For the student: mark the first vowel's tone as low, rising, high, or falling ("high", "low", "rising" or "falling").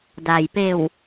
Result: low